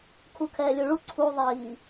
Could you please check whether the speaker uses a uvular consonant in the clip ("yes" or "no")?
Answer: no